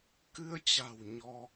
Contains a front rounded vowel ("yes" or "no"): no